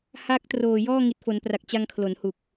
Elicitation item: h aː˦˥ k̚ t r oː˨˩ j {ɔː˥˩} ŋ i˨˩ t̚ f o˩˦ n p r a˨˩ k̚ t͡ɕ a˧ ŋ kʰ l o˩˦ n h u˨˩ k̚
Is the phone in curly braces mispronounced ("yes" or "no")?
no